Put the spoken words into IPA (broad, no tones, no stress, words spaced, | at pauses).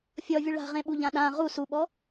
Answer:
fʲɔvʲu ɭa̤ʁẽɓuʎã ɗã ʁu suɓɔ